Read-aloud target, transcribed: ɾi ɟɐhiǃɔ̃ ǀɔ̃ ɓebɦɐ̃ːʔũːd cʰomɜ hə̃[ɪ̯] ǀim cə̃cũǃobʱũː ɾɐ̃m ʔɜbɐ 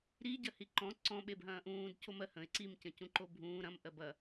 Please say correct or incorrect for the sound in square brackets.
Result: correct